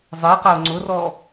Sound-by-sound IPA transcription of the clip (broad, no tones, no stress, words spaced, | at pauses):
zˤɛqao̯ ŋ͡ǀʊrɔ